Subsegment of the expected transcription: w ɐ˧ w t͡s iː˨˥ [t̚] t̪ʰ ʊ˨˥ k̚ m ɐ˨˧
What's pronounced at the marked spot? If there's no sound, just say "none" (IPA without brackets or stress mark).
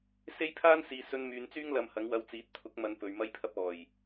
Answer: t̚